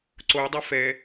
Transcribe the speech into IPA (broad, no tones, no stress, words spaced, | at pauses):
ǀoi̯dˤɛ fɛ